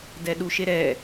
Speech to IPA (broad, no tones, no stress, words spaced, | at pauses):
dɛɗuʃeɾɛ